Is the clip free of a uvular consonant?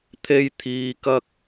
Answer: yes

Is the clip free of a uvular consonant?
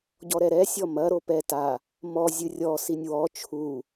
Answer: yes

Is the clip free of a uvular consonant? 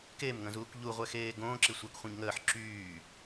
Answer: no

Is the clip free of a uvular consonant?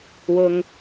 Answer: yes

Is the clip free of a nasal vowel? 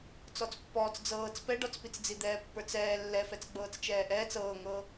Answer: yes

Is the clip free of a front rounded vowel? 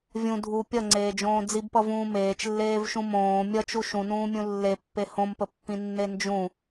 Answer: yes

